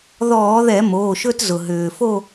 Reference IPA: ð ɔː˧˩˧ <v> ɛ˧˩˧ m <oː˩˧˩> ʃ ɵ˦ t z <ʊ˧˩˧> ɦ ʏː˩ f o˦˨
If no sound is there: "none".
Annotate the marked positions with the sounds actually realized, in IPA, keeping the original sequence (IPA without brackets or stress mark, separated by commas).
ð, oː˩˧˩, ʊ˩